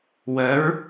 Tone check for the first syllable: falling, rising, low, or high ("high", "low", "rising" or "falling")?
rising